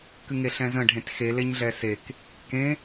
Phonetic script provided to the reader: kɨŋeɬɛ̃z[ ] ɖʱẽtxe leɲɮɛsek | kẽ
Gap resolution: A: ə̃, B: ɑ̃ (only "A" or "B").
A